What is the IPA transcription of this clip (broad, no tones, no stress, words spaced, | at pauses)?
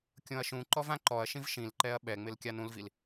kʲõɐ̯ʃũǃɔv ãǃɔɐ̯ʃĩv ʃĩlǃɛɐ̯ ɓɛŋ͡mɪl kʲanũlvil